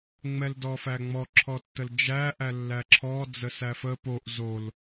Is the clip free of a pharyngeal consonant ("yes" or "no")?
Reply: yes